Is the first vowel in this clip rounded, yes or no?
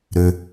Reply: yes